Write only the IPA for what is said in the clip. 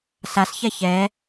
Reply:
s a s ç ɛ ç ɛ

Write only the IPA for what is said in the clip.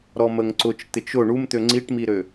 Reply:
ɾ ɔ m ə ŋ ǀ ʊ t͡ʃ t̪ ɪ t͡ʃ ʊ ɳ u m t̪ ø ŋ͡ǀ i ʈ m i ɾ ø

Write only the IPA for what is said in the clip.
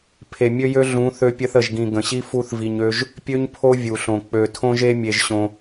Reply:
pʰ e˨ mʲ ø˦ j ø˦ ɮ ũ˨˦ θ ø˧ pʲ ə˧ θ ə˨ ʒ ɡ ĩ˨ ɡ ə̃˨ ɕ i˦ f u˦ θ v i˧ ɲ ø˦ ʒ | pʲ ø˦ ɲ pʰ o˦ vʲ u˨ ɬ õ˨ k͡p ø˨ tʰ õ˧ ʒ e˧ mʲ e˧ ʒ ɕ õ˧

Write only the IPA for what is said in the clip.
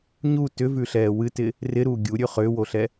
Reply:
ɲ u t ʏ v ʉ ɬ ɛː w ɨ t ɪ | r ɪ ɾ uː ɡʲ u ɾʲ ʉ χ ʏː w o ɬ ɛ

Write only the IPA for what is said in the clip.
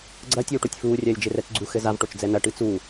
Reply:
ɡ͡ǀ ɐ tʲ uː ʈ o tʲ f uː rʲ ɐː lʲ d͡ʒ e r ɛ t͡s ɡ͡ǀ u x ɘ z a v ʈ o t͡ʃ d͡z ɛ n ɐ ʈ ɨ t͡s u

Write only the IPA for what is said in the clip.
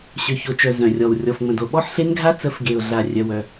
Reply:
ɕ ø˨ ç o˨ t͡ʃ œ˨ z œ̃˨ rʲ ɔ˨ w rʲ ɔ˨ f ŋ͡m ə̃˨ d o˨ ɓ ɔ˦ ħ ɬ e˦ n ɡʱ a˦ t͡s ə˨˦ f ɡ e˨ ʊ̯ ɮ a˨ rʲ œ˦ w œ˦

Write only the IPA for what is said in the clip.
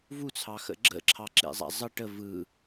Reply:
v u t͡sʰ ɑ x ə̰ ɡ͡ǁ ə̰ ǁʰ ɑ ǁ ḛ zˤ a̰ zˤ ə ʈ ə v ɯ

